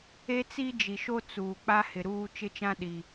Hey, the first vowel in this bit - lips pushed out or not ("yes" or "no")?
no